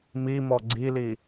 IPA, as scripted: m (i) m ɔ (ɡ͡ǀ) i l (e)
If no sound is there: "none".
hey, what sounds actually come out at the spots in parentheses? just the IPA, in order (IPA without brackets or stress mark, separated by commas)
i, ɡ͡ǀ, i